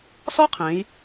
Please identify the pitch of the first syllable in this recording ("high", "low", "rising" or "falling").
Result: high